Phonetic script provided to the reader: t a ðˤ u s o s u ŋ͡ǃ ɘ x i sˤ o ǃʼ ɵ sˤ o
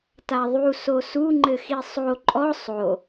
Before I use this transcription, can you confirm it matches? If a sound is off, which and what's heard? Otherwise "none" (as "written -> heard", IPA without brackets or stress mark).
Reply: ɵ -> ɔ